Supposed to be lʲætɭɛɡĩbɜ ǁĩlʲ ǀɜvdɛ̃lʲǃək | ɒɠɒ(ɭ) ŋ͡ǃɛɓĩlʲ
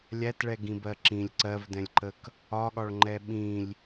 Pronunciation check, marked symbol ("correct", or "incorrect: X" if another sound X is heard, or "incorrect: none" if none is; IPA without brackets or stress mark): correct